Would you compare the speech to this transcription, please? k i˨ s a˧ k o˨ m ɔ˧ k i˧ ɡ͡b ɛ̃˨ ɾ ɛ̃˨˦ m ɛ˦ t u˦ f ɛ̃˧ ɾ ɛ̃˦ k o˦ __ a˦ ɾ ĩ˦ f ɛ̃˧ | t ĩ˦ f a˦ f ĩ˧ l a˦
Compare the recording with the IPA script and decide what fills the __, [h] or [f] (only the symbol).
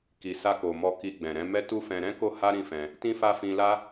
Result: h